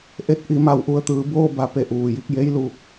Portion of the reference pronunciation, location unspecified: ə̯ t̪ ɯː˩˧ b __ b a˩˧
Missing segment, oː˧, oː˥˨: oː˥˨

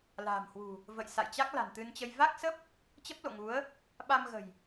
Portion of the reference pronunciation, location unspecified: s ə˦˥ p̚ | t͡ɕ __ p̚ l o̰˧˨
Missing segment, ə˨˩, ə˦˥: ə˦˥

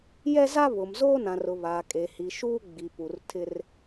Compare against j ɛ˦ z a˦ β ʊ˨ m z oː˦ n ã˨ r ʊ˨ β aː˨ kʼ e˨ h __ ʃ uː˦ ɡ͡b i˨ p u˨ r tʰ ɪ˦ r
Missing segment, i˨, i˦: i˨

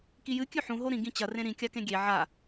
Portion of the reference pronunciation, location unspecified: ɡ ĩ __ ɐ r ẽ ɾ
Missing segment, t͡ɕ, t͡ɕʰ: t͡ɕ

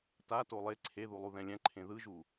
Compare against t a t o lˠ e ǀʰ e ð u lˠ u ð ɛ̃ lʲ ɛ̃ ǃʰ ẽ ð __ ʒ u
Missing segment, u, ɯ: ɯ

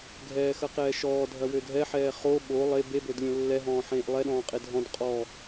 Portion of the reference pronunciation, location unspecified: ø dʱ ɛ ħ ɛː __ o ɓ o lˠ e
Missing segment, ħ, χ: χ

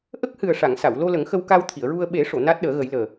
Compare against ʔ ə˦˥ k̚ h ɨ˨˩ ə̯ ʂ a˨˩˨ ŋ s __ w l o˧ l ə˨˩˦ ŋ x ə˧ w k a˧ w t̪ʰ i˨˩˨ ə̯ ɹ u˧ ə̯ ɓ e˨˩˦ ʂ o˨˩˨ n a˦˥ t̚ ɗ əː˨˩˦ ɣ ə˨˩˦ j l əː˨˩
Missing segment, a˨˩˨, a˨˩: a˨˩˨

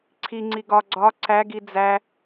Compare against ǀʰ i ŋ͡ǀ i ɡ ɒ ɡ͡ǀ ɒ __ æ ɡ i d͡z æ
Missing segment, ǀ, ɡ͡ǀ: ǀ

